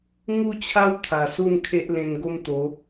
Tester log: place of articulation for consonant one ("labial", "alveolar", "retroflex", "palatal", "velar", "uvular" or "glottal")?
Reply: velar